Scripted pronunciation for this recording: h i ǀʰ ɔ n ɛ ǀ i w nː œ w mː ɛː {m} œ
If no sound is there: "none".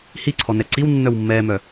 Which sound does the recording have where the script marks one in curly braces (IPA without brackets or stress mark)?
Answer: m